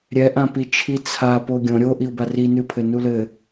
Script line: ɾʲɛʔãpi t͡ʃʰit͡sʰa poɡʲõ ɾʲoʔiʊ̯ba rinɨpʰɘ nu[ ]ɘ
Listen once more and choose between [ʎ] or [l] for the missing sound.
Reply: l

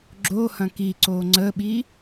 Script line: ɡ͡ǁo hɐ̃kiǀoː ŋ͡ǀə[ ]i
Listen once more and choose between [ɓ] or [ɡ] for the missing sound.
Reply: ɓ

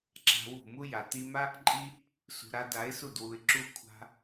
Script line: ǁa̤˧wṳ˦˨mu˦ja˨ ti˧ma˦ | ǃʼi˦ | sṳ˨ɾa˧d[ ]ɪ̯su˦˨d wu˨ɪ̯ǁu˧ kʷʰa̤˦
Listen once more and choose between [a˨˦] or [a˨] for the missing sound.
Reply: a˨˦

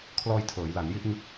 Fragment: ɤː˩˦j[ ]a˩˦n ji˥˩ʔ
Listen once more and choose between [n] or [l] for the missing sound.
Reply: l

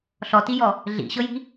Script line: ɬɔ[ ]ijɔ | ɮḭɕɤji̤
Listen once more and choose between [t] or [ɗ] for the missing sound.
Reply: t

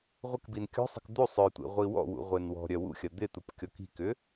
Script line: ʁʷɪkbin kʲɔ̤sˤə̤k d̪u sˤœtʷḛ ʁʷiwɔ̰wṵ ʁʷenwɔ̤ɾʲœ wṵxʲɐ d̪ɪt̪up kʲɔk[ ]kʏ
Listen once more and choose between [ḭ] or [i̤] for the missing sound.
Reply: i̤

